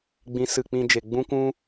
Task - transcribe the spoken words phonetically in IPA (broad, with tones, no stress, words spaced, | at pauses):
ɡ͡bĩ˨˦sɨ˨k͡pĩ˧d͡ʒe˨ ɡ͡bũ˦kʷũ˦